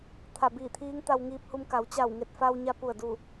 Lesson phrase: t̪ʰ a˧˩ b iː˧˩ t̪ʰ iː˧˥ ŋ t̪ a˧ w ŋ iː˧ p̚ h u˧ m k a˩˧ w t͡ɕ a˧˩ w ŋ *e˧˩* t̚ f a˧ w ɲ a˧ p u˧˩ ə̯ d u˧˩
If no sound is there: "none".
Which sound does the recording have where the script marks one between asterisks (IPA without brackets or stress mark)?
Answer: e˧˩